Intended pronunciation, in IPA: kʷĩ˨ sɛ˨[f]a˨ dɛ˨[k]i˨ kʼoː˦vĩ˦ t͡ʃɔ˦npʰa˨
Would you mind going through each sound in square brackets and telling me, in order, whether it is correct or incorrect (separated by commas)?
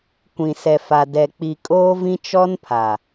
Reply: correct, incorrect